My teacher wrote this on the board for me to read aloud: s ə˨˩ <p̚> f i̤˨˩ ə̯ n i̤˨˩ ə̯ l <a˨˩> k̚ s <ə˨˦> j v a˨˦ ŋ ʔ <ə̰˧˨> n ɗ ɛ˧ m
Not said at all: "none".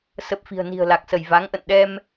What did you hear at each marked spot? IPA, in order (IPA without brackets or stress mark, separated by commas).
p̚, a˨˩, ə˧˩, ə̰˧˨